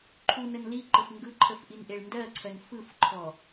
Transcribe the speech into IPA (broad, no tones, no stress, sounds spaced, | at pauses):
ǃʰ u n ə n l i ǃ ə f ŋ ɡ ɯ ǃʰ ə f ʔ i n ʔ e ɭ n d ɜ ǀʰ ɜ n f ɯ f ǃʰ ɔ